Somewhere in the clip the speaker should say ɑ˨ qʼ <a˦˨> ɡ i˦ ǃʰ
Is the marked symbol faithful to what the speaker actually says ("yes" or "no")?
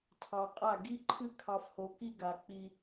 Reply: yes